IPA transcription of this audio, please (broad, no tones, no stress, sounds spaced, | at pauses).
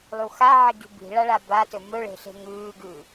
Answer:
lˠ u x a ʕ i ɡ i̤ b i̤ ɭ a ɭ a b a t ɵ m ɵ ɭ e̤ ɬ e̤ ŋ ʉː ɡ ʉː